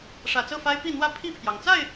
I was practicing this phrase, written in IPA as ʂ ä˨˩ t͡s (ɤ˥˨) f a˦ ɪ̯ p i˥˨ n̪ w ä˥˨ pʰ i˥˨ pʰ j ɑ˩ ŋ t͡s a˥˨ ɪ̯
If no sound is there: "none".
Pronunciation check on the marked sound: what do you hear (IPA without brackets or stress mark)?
ɤ˥˨